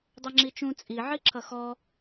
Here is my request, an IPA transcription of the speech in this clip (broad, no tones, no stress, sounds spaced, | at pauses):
dˤ ʌ ŋ͡ǁ i t͡ʃ ũ t͡sʼ i ʕ i ǁʰ ʌ x ɔ